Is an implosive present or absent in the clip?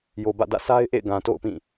absent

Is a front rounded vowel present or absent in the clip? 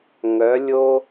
present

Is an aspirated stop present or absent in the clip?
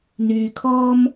present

